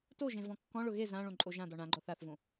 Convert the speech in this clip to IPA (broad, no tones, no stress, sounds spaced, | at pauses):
t o ʒ ẽ v ɔ̃ kː ɔ̃ ɭ ʊ ɣ e z ã ɭ õ ǃʼ o ʒ ã d ɔ ɳ ã ɡ͡ǃ ɔ θ a θ v õ